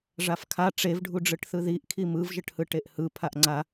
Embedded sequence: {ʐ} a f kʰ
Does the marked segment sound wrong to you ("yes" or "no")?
no